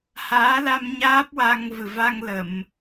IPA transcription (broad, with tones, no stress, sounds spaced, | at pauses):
h aː˧˥ l a˧ m ɲ aː˦˥ p̚ w a˧ ŋ v ɨ˨˩ v a˧ ŋ l ə˨˩˨ m